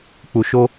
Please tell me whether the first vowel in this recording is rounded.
yes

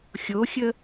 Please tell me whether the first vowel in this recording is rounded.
yes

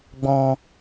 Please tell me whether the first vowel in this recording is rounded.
yes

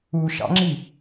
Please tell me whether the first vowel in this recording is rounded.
yes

